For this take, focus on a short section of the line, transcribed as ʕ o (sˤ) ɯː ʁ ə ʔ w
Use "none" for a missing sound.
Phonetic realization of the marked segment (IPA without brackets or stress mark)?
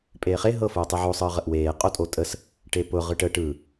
sˤ